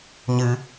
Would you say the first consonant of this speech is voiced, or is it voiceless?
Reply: voiced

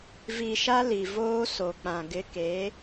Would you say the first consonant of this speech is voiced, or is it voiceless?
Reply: voiced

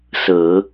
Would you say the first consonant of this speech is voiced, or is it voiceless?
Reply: voiceless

